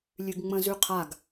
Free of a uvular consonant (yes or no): no